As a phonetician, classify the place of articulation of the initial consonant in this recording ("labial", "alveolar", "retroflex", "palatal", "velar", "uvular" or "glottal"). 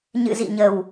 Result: palatal